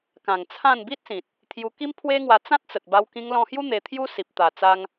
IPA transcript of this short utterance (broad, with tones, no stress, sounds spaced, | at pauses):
k ã˨˩ ŋ t͡sʰ ã˥˧ n b i˦ t̚ s ĩ˨ t̚ | t̪ʰ j u˧ k i˦ m pʰ w e˦ ŋ w a˧ t͡s ã˦ t̚ t͡s ə˨ t̚ b a˧ w k ĩ˧ ŋ l ɔ̃˧ h j u˦ n̪ e˧ t̪ʰ j u˦ s i˨ p̚ t̪ a˨˩ t͡s a˧ ŋ